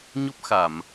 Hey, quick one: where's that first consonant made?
palate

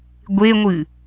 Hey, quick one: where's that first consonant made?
velum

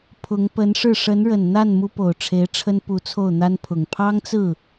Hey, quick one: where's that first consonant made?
lips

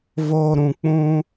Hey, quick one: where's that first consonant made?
lips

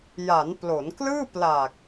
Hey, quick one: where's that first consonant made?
palate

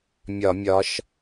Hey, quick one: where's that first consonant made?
lips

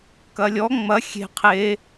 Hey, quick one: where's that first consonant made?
velum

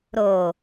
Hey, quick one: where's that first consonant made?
tongue tip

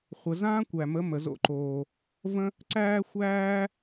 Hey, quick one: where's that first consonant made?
uvula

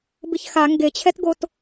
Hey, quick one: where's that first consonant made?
lips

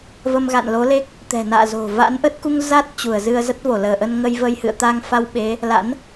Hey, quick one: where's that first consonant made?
lips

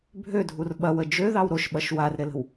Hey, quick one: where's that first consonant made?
lips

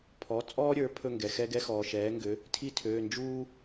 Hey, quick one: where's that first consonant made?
lips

